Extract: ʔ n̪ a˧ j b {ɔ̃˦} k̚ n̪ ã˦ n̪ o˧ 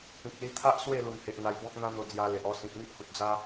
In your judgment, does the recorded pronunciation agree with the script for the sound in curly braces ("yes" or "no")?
yes